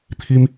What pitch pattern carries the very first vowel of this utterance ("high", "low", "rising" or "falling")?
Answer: high